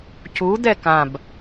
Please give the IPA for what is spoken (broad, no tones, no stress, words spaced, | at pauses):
cud̪ɛ kãb